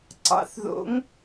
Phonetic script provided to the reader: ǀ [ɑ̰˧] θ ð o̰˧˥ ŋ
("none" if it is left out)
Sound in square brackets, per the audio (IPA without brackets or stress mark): ɑ̰˧